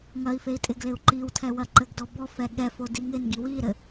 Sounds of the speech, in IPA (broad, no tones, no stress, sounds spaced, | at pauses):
ŋ ɐ i̯ f e i̯ tʼ ɪ ɡ l ɪ u̯ ǃ i w tʰ ɛ w ɐ ǃ ɘ ɡ d ɔ b ɔ f ɛ ɠ ɛ f o d i ŋ ɪ n ɡ i w i ɾ ɘ